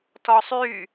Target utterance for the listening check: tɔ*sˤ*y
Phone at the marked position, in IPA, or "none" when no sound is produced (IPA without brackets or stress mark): sˤ